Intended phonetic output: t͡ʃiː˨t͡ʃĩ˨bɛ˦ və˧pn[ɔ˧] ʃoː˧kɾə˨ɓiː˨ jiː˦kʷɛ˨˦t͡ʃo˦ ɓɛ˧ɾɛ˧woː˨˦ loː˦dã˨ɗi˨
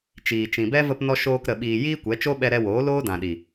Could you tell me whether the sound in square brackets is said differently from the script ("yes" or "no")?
no